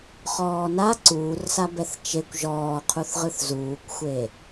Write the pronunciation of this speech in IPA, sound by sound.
χ ɔː n a ǀ uː r s a b ɛ θ t͡ʃ e kʷ ʒ ɔː qʰ u θ ʁ ɯ θ z uː kʷ xʷ e

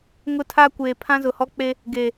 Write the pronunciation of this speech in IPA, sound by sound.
ŋ ʊ˦ tʰ a˦ kʷ eː˨ pʰ ã˦ z ʊ˨ h ɔ˦ k͡p e˦ | ɡ eː˨

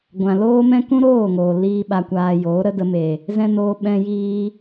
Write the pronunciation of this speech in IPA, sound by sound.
ɡʷ ã˨ l oː˦ m ɛ̃˦ k ũ˦ ɾ oː˦˨ ŋ oː˨ l iː˦ ɓ a˧ kʷ aː˧ j oː˨˦ ɾ ə˦ d ə˧ m e˨ | z ɛ̃˦ n oː˧ ɓ ɛ̃˧ j iː˧

